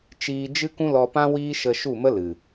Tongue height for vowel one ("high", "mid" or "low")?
high